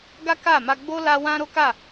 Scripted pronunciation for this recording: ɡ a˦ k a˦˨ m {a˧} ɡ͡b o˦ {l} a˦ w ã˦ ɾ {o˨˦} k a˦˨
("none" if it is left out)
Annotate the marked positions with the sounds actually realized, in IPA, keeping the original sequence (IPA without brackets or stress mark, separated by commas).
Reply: a˧, l, o˦